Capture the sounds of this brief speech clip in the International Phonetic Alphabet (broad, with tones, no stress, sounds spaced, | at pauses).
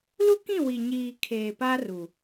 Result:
l u˦ k ĩ˦˨ w i˨ ɲ iː˨ kʰ eː˨ p a˦ r u˨